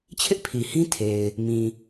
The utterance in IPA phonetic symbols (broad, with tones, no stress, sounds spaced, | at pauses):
t͡ɕʰ ɪ˦ ʔ pʰ i˨ h ĩ˦ tʰ e˨ ɪ̯ | m ĩ˨